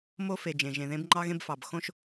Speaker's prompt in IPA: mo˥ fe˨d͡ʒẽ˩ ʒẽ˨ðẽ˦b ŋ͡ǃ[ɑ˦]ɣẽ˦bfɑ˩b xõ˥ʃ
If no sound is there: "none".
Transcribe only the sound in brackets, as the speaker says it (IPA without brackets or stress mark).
ɑ˦